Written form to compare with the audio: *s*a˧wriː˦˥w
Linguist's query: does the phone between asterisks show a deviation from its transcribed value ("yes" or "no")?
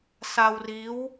no